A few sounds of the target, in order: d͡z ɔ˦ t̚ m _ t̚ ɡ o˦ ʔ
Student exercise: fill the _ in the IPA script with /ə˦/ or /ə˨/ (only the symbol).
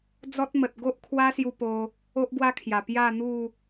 ə˨